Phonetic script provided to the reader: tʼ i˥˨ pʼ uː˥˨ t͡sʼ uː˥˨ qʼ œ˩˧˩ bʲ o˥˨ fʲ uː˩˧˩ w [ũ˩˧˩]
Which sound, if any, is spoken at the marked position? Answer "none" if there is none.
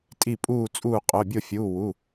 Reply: u˩˧˩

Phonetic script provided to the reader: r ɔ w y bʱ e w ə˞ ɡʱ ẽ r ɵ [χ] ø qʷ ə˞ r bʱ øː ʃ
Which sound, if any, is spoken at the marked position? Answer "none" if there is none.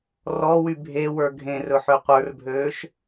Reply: ħ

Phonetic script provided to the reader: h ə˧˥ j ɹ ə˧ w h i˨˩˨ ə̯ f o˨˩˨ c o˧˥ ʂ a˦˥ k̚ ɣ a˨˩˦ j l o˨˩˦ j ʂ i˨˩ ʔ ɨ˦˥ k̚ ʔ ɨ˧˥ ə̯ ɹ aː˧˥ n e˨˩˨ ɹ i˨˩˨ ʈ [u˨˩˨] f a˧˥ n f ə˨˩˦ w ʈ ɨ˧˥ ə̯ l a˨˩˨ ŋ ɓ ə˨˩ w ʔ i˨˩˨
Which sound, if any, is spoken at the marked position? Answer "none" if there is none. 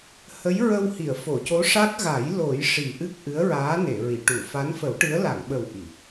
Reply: u˨˩˨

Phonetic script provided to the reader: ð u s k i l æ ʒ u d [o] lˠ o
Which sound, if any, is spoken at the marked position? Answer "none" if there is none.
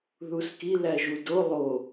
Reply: o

